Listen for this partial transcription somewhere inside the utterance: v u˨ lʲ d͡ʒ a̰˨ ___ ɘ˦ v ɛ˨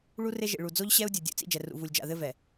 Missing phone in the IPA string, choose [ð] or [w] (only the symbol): ð